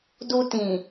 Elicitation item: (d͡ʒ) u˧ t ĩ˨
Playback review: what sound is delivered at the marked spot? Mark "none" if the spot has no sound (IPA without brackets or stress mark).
d